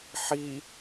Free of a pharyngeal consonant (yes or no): no